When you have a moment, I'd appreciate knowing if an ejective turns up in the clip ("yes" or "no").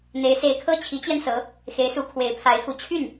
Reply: no